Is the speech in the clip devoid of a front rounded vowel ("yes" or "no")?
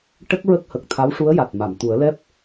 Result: yes